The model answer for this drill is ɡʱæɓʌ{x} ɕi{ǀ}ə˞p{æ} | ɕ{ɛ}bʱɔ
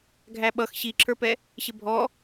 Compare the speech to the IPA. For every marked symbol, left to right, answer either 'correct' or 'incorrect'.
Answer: correct, incorrect: ǁ, incorrect: ɛ, incorrect: ɪ

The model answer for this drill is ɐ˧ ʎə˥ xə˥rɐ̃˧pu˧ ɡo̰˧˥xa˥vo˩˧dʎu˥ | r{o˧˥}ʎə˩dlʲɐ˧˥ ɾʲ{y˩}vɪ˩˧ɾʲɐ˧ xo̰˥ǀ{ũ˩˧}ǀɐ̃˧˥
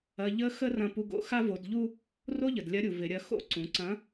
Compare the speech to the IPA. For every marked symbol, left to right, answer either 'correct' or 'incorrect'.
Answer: incorrect: o˥, incorrect: u˩, correct

